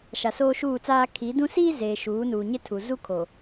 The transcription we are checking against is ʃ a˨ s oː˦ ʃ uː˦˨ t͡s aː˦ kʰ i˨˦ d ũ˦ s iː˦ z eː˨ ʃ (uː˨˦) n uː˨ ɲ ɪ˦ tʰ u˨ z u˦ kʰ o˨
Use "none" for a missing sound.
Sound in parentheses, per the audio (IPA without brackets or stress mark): uː˨˦